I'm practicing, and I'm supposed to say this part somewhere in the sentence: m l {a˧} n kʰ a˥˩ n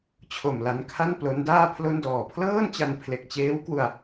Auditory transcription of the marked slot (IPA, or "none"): a˧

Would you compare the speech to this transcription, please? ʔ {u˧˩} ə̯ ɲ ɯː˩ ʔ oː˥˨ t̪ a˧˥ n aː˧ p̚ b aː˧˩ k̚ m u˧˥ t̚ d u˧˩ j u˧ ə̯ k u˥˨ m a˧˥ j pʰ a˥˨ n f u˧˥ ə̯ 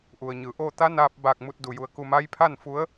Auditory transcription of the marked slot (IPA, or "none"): u˩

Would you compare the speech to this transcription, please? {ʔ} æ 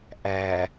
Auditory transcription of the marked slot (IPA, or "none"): ʔ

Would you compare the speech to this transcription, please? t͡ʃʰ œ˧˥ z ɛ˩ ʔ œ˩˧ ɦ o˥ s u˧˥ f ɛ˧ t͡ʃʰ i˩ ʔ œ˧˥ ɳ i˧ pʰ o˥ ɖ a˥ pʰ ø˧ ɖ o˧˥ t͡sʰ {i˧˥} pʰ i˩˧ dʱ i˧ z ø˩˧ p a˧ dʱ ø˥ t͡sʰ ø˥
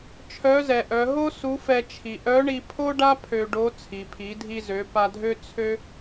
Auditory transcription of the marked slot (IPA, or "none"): i˩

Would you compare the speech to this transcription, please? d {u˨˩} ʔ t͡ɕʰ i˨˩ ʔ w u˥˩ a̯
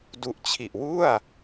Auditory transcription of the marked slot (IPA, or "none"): u˨˩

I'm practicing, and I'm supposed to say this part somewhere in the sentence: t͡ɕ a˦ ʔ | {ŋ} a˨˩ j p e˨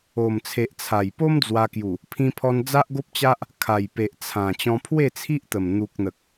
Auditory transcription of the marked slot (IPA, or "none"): kʰ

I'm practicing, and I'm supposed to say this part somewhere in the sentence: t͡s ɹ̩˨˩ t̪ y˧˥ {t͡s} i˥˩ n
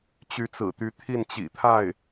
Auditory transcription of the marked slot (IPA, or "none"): t̪ʰ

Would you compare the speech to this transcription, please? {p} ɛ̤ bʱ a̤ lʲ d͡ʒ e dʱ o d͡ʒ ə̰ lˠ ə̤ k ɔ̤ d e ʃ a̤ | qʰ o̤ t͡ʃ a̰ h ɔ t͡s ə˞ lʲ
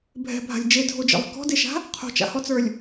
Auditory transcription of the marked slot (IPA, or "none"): bʱ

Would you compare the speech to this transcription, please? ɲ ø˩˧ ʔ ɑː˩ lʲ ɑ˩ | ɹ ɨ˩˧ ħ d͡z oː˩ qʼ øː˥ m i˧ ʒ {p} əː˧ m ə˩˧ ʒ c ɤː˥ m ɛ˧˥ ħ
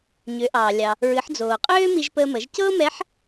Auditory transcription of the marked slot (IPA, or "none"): p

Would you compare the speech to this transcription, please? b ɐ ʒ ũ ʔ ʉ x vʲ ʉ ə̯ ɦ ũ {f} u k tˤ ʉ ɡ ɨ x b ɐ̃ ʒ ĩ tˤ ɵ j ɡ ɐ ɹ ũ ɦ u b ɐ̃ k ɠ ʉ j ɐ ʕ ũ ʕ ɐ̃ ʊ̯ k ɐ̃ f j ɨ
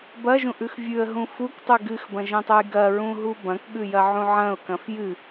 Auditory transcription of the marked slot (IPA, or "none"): f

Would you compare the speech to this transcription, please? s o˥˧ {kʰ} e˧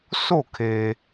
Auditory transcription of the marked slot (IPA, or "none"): kʰ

